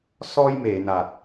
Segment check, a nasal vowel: absent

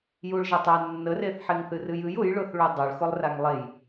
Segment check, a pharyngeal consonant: present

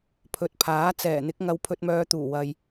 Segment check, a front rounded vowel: present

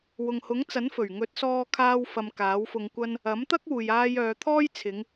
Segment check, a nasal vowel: absent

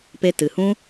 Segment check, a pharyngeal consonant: absent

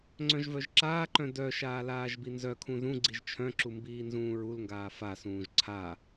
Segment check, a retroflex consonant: absent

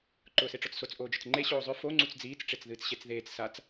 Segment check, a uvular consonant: absent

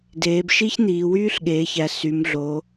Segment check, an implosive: present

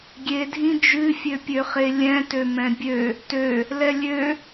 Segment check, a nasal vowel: present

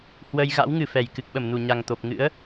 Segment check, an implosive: present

